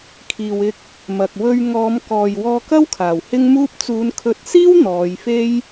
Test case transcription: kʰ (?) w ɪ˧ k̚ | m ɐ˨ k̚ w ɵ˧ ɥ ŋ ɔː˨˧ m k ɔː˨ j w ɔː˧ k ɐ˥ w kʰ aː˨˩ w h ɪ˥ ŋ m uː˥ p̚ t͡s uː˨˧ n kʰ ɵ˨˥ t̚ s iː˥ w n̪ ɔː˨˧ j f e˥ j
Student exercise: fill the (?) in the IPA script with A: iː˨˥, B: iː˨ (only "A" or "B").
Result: B